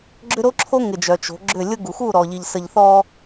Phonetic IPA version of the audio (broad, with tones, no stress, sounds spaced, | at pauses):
ɡ͡ǁ ʏ˦ ɾ o˦ ǁʰ o˦ ŋ ɪ˨ d͡ʒ œ˨ t͡ʃ o̤˨˦ ɡ͡ǁ ʏ˦˨ lʲ ʊ˦ ɡ u˨ x u˦˨ ɾ ɔ˨ ʎ i˨ ʎ s ə˨ ʎ θ ɔ˦